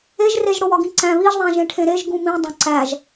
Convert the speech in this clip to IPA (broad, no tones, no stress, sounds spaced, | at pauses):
e ʒ r e ʒ ɽ o w ɒ ɡ ĩ ǀ æ̃ β i ʒ ðˤ æ̃ ʒ ẽ ʈʰ ẽ ɾ e ʒ ɡ ũ m ĩ dˤ õ ǀ æ ʒ